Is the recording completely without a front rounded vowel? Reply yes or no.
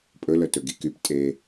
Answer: no